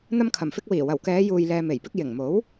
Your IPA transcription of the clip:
n̪ɐ˧mkʰɐ˨˩mfɪ˧k̚wiː˨˩ wɐ˨˩wkɛː˨˧ juː˨jlɛː˨me˨˩jpɪ˧k̚ jɪ˨˩ŋmo˨˥w

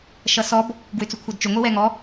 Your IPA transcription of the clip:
ʃʌsɔb | ɡwʏt͡sʏkʷʰɛdt͡ʃy ŋʷiwɛŋɔ

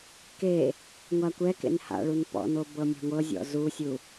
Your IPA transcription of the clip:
ke | ŋʷakʷɛkḛn ha̰ɭun pɔ̰no bɤmʲa̤ŋʷɤzʲɔ̰ zusʲu

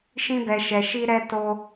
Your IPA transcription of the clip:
ʃĩ˦bɛ˧ʃɛ˧ ʃi˦ɾɛ˦ to˦

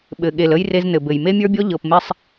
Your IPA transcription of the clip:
ɓɘ˨ ɠe˨lə˦j re˦znɘ˨bɘ˨j me˦mʲə˞˦bʲɔ˦ ʎɤ˨pme˦sˤ

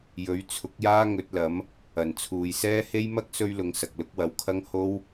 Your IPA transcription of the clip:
jɵ˨˥ɥt͡sʰʊ˨˥k̚jaː˥ ŋɵ˨˥t̚lɐ˨˥m | ɐ˨˩nt͡sʰuː˨jsɛː˥ he˥j mɐ˥k̚ sɵ˥ɥlʊ˨˧ŋ sɐ˨k̚lʊ˨˥k̚wɐ˨˥wkʰɐ˥ŋ ho˥w

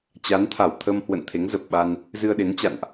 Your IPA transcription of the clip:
t͡ɕa˨˦nt̪ʰa˧˩wt̪ʰə˧mhwə̰˧˨n t̪ʰe˨˦ŋzə˨˩p̚ɓa˧n | zɨ˧ə̯ɗe˨˦nt͡ɕa̰˧˨nʔ

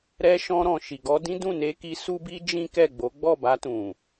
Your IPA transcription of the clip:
ɾɛ˧ ʃɔ̃˧ ɾɔ̃˨ʃi˨ɡɔ˧ dĩ˦dũ˦˨ne˧ki˧ su˦bi˦d͡ʒĩ˦ kɛ˦˨ɡ͡bo˨˦ ɡ͡bɔ˦˨ba˧tũ˨

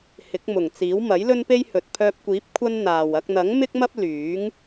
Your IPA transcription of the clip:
hɪ˨˥k̚mʊ˨˩ŋt͡siː˨˥w mɐ˨˥jlɵ˥npe˥jhɵ˨t̚ pʰœː˧p̚kʷiː˨˥p̚ kʷʰɐ˥nn̪aː˨w ɐ˧k̚n̪ɐ˨˥ŋmɪ˥k̚mɐ˥p̚ lyː˨˥ŋ

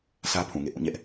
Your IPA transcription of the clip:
sʰä˦pʰũ˨ŋḛ˦˨ ʔũ˦˨ ɲɛ˦ʔ

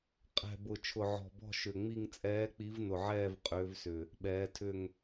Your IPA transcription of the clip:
qʼɛ̤˨˩bʊ˨˩ t͡ʃʰʊ˨˩ʕɔ̤˨˩bɔ̤˦˨ ʃʏ˨˩ŋ͡mi˦˨ŋ t͡sʼɛː˨˦k͡pi˨˦vnʊ˨˩ʕɛː˦˨v qʼʏː˨˦vsʏ˨˩ | ɓɛː˨˦tʰʏ˦˨ŋ

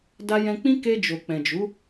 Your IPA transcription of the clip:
da˧jɛ̃˧k͡pĩ˦ ke˧d͡ʒo˨ k͡pɛ̃˨d͡ʒu˨˦

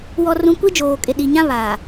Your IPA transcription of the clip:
wɔ˨rũ˨ kʷi˦d͡ʒoː˨kʼɪ˨ɗi˨ ɲã˦βaː˨

